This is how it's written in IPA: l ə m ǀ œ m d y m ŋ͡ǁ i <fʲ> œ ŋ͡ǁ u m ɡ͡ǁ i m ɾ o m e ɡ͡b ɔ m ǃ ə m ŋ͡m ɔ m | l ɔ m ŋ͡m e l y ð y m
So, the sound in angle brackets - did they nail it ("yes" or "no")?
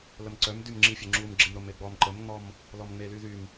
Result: yes